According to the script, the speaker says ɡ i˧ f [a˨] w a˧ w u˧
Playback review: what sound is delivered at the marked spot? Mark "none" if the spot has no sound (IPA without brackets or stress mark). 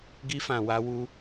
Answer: ã˨